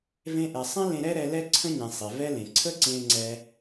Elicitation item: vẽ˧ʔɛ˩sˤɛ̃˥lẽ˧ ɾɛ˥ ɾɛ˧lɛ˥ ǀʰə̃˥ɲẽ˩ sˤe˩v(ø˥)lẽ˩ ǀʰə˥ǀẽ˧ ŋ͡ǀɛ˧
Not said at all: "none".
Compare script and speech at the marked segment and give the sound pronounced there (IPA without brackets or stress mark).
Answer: ɛ˥